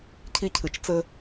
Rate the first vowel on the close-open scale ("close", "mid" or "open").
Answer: close